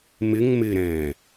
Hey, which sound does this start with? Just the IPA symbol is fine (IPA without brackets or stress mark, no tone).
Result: m